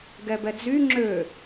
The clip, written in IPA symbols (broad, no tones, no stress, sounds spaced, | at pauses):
ɡ ɛ b ɛ d͡z y ŋ͡ǁ ø